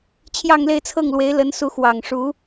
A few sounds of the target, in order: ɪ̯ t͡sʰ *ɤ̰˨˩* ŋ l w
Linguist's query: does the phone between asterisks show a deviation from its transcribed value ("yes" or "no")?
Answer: yes